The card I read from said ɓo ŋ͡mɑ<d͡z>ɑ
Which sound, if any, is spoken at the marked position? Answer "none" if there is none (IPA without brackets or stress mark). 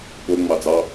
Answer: d͡z